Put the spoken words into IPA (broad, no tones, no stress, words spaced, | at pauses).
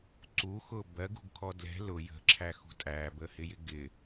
ǀuxʊ bɜɡṳɡkʰɔ dlɛ̤ lʊ jə̤ǁʰæxṳ tʼæbəhɪjɪ ɡɪ